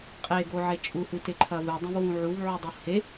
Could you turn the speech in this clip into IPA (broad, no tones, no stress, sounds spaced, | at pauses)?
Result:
qʼ e ɡ o ʕ e t͡ʃʼ u h ɨ t e ǃʰ ɐ v ɨ dˤ ũ v w ũ ʕ u v ʕ ʉ dˤ u h e